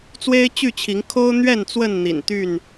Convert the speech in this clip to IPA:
t͡s w e˦ ɪ̯ t͡ɕ y˥˨ t͡ɕʰ i˨˦ ŋ kʰ o˦ ʊ̯ n̪ ɥ ɛ˥˨ n t͡s w ə˥˨ n n̪ ḭ˨˩ n t̪ y˥˨ n

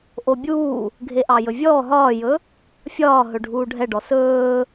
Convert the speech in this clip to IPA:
ʔ o bʲ uː | ɡʱ e ʔ ɑ j ɵ vʲ ɔː ɦ ɒː j ɵ | fʲ ɒː ɦ ɵ ɖʱ uː ɖʱ ɛ ɖ ɔ s ɵː

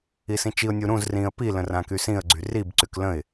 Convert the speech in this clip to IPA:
i s ĩ t͡ʃ i ʊ̯ nʲ u ɾ ũ z r ĩ ə̯ p i l ə̃ r ã k y s ĩ ə̯ ɡ͡ǀ y r i b ǀ y k l ə̃ ɪ̯

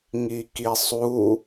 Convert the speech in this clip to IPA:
ŋ i k i sˤ u

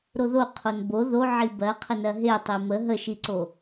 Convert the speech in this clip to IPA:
ɾ o ð o qʰ o n b o ð o ʕ i b ɜ qʰ ə n ɜ ɦ e tˤ i m ə ɦ ə ʃ i ǀ o

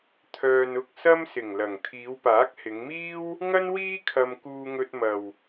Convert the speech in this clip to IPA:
t̪ʰ œː˨ n ʊ˧ k̚ s ɐ˥ m s ɪ˨˩ ŋ l ɐ˨˩ ŋ t̪ʰ iː˨˧ w p aː˨˥ k̚ h ɪ˨˧ ŋ m iː˥ w | ŋ ɐ˥ n w iː˥ kʰ ɐ˧ m k uː˧ ŋ ɵ˧ t̚ m ɐ˨ w

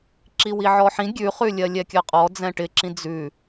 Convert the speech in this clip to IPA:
ǁ i w i ʕ ɔ ħ ĩ ɡʲ ʉ χ ʉ lʲ ɜ lʲ ɛ kʲ ɜ qʼ ɔ d͡z ɛ̃ ʈ ɪ ǁ ĩ d͡z ʉ

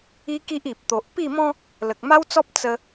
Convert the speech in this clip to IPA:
i˦ k i˦ ʔ i˨ p̚ t̪ o˨ ʔ p i˥˧ m ɔ̃˦ | l ə˨ k̚ m a˦ w t͡s ɔ˦ p̚ t͡s ə˧

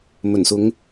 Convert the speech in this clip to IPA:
m ɵ˨˩ n s ʊ˨˧ ŋ

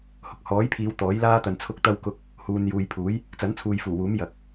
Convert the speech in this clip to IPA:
h ʊ˧ k̚ h ɔː˨˥ j pʰ iː˨˧ w t̪ ɔː˨˥ j l aː˥ t̪ ɐ˧ n t͡sʰ ʊ˥ k̚ t̪ ɐ˥ w k ʊ˥ k̚ | h uː˨ n j uː˨ j pʰ uː˨˥ j | t͡s ɐ˨˥ n t͡sʰ uː˨ j f uː˨˩ w uː˨˥ m j ɐ˨ k̚

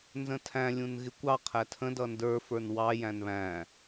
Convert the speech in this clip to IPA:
n z ə̃ tʰ æ̃ lʲ ũ n ɣ ɪ kʷ ɑ qʰ æ tʰ ə̃ d ʌ n d ə˞ f ə˞ n w ɑ j æ̃ n β æ̃

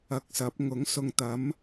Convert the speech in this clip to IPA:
ɐ˧ k̚ s ɐ˨˥ p̚ ŋ ʊ˨˥ ŋ s ʊ˧ ŋ t̪ ɐ˨˥ m

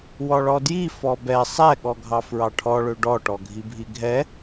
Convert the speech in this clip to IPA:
w ɔ ɭ ɔ d j i f ɔ b ɛ sˤ ɛ ɠ ɔ ɡʱ ɑ f ɹ ɑ ʈʰ ɔ ɭ ø ɖ ɔ ʈ ɔ ɡʱ i bʱ i ɡʱ ɛ

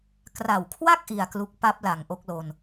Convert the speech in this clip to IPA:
k r a˨˩ w kʰ w a˥˩ k̚ ʔ i˧ a̯ k l u˦˥ k̚ p a˦˥ p̚ l a˩˦ ŋ ʔ o˦˥ k̚ l o˧ n

